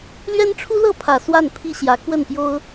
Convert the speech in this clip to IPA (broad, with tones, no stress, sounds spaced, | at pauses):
l ɥ ɛ˥ n ʈ͡ʂʰ u˥ l ɤ˥˩ pʰ ä˨˩ s w a˥˩ n pʰ i˥ ɕ j ä˧˥ k w ə˥˩ n p j o˥ ʊ̯